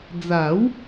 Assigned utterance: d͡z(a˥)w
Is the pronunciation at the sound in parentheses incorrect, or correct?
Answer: incorrect: a˨˩˦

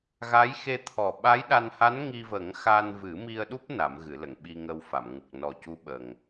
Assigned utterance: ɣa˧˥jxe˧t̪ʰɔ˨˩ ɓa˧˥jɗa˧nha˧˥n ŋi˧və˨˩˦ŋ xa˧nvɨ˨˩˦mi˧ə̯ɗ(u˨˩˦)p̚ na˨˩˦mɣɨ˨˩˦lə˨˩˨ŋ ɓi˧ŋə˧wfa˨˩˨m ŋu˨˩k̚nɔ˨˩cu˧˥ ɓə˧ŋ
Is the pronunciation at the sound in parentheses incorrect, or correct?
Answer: incorrect: u˦˥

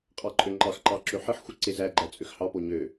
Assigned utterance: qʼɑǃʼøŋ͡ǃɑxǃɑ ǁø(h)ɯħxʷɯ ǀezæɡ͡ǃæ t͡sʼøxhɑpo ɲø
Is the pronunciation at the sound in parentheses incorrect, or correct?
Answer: incorrect: ħ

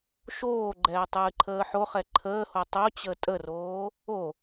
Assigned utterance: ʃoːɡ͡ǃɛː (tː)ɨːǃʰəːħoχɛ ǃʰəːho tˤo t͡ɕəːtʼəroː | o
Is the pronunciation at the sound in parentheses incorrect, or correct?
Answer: incorrect: tˤ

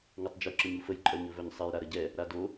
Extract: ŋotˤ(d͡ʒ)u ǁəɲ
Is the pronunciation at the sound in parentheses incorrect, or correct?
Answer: correct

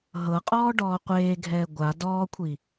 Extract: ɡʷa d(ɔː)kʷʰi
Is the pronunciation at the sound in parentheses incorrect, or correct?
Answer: correct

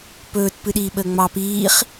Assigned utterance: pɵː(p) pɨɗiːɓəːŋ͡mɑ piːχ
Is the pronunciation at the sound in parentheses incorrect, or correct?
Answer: incorrect: t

